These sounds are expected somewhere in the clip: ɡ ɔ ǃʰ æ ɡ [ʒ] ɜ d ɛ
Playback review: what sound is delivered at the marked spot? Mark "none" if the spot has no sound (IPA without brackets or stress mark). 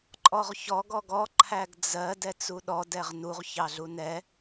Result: d͡z